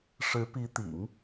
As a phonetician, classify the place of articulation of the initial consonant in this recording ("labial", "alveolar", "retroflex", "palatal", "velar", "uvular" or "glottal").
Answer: retroflex